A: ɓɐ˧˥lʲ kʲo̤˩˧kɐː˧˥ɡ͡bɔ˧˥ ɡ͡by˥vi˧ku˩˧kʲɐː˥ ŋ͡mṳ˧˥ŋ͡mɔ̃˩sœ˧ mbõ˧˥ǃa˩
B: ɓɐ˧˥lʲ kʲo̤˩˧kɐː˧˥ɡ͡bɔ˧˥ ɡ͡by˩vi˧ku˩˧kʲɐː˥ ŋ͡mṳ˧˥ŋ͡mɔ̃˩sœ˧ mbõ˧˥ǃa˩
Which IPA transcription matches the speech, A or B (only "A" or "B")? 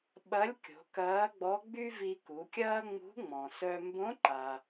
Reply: A